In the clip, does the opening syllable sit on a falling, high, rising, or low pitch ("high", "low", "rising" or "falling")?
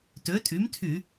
rising